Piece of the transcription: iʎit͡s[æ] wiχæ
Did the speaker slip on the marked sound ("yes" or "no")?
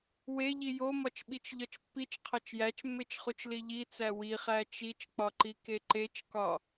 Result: no